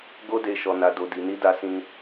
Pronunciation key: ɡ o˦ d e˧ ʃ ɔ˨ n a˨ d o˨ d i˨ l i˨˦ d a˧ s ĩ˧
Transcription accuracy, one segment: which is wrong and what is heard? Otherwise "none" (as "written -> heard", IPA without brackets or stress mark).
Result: l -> n